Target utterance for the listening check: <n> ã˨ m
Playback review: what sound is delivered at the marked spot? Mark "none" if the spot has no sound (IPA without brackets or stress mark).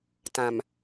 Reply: t